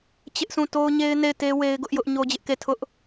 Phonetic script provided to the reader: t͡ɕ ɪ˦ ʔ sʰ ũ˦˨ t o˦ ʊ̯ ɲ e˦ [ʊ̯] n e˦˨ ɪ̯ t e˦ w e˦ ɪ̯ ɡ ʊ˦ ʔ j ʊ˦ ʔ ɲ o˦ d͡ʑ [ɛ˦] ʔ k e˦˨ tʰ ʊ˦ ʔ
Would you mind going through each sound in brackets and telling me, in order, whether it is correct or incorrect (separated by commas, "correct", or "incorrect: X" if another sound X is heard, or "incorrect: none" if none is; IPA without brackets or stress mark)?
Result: incorrect: ɪ̯, incorrect: ɪ˦